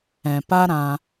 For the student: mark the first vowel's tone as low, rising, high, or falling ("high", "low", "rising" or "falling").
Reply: low